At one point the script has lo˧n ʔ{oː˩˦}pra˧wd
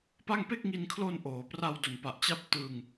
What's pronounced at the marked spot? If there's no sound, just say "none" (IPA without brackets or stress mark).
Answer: oː˩˦